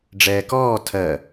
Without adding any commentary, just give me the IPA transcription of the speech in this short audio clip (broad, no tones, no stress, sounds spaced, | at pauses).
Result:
ɖ͡ʐ ɛː k ɔː tʰ ɜ